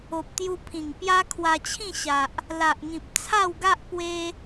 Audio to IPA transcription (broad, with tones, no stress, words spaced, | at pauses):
o˨p̚t̪ju˧ pʰĩ˨˩ŋpja˦ kʰwa˧t͡ɕʰĩ˥˧ɕa˨ʔ | la˨ʔŋĩ˨p̚t͡sʰa˥˧wɡa˦ʔ pwe˦